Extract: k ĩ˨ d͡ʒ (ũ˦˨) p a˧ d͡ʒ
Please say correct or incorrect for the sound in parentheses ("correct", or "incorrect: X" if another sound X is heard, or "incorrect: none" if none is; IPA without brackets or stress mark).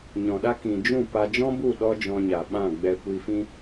correct